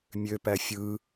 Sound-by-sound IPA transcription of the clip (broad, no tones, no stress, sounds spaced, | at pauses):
mʲ ø p æ fʲ ɯ